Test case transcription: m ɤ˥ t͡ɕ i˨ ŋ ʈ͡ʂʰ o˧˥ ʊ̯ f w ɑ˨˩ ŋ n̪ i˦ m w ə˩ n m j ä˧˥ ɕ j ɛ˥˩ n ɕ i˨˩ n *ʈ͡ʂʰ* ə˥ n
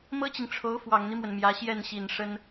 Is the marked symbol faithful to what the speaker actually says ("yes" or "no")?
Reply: no